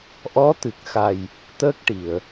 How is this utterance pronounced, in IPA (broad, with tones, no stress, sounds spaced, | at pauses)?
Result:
ʔ ɔ˧˥ t̪ ɨ˨˩ k̚ x a˨˩ j | t̪ əː˦˥ k̚ ʈ i˨˩˨ ə̯